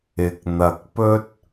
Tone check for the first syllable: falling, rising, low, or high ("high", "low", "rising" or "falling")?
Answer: rising